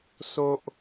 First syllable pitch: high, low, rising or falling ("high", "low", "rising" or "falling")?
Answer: high